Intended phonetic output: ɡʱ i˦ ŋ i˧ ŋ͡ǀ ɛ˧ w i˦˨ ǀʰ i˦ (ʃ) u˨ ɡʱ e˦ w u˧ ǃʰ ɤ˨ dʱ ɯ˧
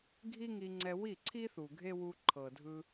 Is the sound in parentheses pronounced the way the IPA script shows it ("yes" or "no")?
no